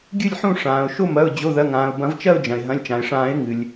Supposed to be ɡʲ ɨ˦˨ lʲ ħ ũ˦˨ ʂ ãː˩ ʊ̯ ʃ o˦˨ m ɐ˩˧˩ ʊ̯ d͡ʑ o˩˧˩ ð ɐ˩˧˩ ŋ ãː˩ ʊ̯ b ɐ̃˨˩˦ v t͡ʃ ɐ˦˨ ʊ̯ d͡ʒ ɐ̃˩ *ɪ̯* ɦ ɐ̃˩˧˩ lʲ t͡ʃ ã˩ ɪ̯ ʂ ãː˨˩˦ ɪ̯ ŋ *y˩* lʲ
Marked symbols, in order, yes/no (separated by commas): yes, no